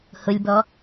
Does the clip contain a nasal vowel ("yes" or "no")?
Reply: no